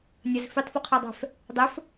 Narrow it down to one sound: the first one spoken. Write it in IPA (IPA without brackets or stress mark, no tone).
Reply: nʲ